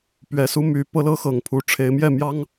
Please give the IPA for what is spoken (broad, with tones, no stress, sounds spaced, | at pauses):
p ɥ ɛ˨˦ s u˦ m y˨˦ p ɤ˦ l ɤ˦ x ɤ˨˩ ŋ pʰ u˨˦ ʈ͡ʂʰ e˨˦ ɪ̯ m j ɛ˥˨ m j ɑ˦ ŋ